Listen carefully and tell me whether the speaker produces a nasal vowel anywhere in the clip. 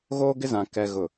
yes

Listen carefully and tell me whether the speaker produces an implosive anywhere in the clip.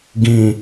no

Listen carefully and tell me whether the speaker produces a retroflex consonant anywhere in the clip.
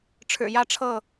yes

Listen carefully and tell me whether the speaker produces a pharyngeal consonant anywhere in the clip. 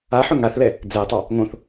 yes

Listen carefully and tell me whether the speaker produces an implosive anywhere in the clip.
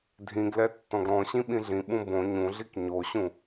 yes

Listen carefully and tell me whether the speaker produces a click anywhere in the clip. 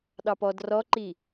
yes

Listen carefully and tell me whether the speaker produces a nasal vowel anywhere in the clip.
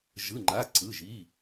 no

